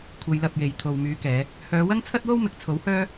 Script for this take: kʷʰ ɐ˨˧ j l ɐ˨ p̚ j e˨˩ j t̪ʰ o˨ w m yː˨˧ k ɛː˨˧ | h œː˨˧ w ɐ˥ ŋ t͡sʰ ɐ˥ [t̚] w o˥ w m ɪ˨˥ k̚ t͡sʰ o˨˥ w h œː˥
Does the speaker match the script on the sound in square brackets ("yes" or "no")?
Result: yes